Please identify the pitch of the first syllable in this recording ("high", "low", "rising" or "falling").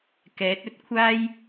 rising